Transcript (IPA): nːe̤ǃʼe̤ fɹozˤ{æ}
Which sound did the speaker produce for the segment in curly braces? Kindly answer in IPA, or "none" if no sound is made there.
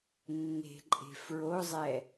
ɛ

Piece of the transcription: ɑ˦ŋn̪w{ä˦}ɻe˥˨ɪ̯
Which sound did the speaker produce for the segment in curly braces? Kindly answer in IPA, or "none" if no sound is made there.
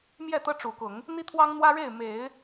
ä˦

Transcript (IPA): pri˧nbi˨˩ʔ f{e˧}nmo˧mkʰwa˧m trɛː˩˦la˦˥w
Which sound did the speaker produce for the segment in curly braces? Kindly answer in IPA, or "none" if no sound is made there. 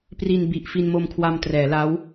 i˧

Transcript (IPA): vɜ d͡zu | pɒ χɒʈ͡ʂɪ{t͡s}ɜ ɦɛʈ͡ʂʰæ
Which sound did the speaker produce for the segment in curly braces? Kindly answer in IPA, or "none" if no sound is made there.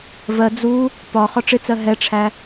t͡s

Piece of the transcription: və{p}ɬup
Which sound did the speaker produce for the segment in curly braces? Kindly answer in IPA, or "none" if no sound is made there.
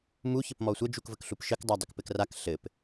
k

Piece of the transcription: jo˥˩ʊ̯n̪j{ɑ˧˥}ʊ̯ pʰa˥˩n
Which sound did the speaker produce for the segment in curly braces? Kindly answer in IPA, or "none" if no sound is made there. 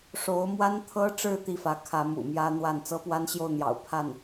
ɑ̰˨˩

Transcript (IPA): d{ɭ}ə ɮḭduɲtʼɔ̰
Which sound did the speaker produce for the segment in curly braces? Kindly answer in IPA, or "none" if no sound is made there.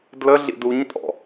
l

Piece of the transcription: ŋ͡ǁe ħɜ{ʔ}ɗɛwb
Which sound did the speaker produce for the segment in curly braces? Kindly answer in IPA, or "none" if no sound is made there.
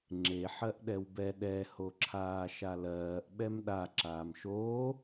ʔ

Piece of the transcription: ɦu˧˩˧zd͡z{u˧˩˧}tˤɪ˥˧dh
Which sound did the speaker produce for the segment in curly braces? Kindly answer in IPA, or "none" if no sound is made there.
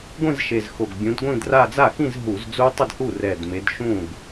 u˦˥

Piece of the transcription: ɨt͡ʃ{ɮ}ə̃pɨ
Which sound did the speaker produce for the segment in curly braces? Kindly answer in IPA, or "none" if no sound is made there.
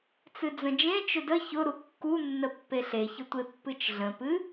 ɮ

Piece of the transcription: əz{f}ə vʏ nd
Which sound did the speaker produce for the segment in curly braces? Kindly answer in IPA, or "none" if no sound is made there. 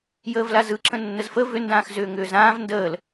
f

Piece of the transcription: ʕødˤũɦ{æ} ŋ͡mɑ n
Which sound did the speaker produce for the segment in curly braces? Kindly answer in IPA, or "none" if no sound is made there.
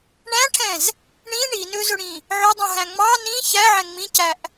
æ̃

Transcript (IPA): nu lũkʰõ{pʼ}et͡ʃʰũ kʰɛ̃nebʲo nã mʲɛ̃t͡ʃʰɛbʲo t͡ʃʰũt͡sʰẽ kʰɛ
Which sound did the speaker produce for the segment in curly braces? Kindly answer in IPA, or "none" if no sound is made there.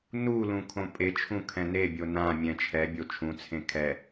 pʼ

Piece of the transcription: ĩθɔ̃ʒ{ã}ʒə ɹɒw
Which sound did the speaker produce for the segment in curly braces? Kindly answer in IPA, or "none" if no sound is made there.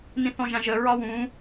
ã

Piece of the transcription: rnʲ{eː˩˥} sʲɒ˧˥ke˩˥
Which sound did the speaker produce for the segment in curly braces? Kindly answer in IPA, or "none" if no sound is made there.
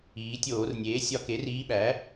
eː˩˥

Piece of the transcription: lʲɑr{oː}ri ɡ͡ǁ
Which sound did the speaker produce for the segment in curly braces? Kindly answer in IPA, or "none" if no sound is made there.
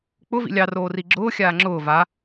oː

